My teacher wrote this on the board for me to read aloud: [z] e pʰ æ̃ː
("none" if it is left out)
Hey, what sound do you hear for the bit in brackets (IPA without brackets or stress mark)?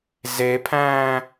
z